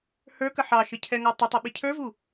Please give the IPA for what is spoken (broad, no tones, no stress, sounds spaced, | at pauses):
h ə˞ k ə ħ ɑ ʃ ə cʰ ɛ ŋ ɑ tˤ ə tˤ ʌ ɓ i cʰ ə˞ v u